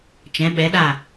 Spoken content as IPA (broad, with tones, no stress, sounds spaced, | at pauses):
t͡ʃ ɛ̃˩˧ ɓ ɛ˩˧ ɗ a˧˩